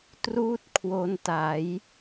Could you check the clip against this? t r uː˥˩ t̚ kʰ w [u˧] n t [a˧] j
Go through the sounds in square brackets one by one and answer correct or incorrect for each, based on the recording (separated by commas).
incorrect, incorrect